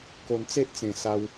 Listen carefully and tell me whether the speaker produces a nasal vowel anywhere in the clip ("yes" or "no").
yes